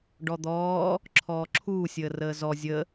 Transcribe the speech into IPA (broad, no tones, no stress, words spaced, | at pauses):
ɖɔd̪ɔː | ǁʰɔːǁʰuː sʲəːrəːzɔ zʲə